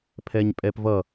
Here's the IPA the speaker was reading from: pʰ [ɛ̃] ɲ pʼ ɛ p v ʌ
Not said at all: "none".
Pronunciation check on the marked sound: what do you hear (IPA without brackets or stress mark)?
ɛ